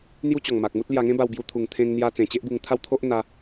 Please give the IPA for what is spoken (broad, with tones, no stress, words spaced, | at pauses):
n̪ju˦t͡ɕɔ˨˩ŋma˨k̚mu˦t̚ lja˧ŋẽ˦ba˧wbju˧ t̪ʰu˨˩ŋt̪ʰẽ˧ŋ n̪ja˧ t͡sẽ˨˩t͡ɕe˦ʔbu˧ŋt̪ʰa˦w t̪ʰo˦ʔn̪a˧